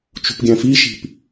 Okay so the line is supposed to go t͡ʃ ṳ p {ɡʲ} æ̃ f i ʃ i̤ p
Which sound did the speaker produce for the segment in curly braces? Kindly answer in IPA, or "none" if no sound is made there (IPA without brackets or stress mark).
ɡʲ